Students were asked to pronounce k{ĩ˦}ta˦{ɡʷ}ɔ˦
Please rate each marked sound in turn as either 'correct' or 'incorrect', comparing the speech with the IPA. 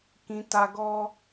correct, incorrect

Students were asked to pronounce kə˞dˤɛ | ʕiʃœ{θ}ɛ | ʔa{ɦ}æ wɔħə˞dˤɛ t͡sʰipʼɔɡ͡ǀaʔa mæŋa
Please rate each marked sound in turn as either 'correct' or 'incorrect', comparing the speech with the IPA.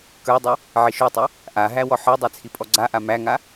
incorrect, correct

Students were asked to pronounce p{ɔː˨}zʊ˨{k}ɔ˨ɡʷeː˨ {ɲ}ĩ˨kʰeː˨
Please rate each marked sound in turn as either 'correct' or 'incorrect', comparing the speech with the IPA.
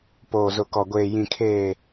incorrect, correct, incorrect

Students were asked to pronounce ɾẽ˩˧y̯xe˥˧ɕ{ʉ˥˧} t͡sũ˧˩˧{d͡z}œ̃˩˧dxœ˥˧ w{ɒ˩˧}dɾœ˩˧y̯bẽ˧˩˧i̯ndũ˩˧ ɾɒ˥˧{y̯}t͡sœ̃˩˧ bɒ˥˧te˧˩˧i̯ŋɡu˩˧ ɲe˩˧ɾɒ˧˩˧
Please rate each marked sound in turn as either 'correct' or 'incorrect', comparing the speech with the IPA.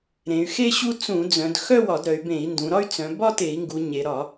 incorrect, correct, incorrect, correct

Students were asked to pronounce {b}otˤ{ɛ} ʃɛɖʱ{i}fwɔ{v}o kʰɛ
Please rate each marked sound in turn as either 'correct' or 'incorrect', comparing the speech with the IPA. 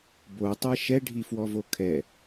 correct, correct, correct, correct

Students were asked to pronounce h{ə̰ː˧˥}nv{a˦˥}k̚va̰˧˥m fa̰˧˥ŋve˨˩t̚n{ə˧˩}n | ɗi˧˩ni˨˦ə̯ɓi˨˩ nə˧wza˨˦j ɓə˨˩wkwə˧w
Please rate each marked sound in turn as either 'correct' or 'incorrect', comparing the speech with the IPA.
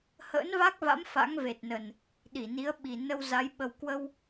correct, correct, incorrect

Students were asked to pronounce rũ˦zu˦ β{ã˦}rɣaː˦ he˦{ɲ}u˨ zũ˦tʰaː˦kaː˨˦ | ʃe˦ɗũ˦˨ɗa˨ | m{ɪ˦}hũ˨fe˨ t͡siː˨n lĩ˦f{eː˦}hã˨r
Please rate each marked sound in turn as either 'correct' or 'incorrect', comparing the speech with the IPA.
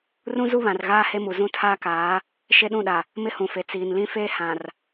incorrect, incorrect, correct, correct

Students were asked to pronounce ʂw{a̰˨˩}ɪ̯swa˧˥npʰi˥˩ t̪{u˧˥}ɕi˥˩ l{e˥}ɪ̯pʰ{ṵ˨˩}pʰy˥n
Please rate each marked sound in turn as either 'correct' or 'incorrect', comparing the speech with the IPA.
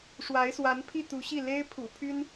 incorrect, correct, correct, correct

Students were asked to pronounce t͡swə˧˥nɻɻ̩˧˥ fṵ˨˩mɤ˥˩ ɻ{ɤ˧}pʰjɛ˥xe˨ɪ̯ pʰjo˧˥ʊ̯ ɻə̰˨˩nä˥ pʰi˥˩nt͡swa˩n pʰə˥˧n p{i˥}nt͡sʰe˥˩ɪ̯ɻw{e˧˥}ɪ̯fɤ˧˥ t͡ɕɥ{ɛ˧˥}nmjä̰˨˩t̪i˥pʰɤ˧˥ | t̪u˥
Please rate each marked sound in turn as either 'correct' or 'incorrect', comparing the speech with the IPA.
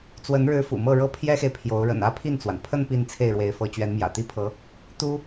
incorrect, incorrect, correct, correct

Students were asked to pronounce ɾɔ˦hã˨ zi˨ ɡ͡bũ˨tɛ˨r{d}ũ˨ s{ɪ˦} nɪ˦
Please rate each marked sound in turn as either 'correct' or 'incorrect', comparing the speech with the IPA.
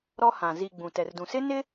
correct, correct

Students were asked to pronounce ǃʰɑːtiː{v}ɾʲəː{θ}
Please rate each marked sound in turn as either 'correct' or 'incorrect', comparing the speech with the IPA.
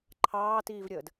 correct, incorrect

